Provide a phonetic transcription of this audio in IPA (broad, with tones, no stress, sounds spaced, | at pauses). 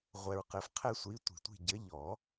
ʁʷ ɛ˨ ɹ q ɘ˨˩˦ f qʰ ɛ˦ sʷ i˨˥ tʷ i̤˨˩˦ tʷ i̤˦˨ ɟ ɘ˨˥ ʎ ɔ˨˩˦